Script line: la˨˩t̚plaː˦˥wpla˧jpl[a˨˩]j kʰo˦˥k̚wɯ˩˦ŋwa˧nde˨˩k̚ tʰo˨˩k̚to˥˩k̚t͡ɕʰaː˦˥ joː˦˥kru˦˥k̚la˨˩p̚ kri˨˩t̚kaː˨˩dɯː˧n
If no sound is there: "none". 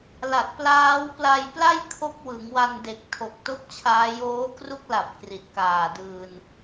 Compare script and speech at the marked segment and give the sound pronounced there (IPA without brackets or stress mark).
a˥˩